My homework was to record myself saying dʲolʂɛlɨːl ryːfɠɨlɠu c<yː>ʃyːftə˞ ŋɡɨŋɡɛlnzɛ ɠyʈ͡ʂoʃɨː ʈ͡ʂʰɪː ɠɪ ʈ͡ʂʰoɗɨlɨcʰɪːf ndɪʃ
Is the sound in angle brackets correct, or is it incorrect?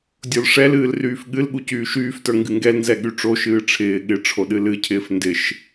correct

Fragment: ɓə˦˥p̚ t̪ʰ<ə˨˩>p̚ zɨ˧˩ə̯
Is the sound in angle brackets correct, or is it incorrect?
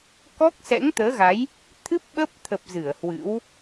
correct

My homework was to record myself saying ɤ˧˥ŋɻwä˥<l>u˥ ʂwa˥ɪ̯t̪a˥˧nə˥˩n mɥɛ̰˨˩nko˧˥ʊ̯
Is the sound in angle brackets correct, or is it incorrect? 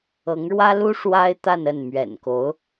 correct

